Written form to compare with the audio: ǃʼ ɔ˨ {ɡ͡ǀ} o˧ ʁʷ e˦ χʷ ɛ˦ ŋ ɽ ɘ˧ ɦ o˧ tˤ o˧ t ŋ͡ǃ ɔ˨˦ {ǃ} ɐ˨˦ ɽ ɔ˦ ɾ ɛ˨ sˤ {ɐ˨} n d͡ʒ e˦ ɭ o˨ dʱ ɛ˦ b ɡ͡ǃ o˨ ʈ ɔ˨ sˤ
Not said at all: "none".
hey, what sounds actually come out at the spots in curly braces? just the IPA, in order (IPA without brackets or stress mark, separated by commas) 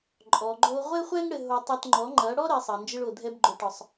ɡ͡ǃ, ŋ͡ǃ, ɐ˨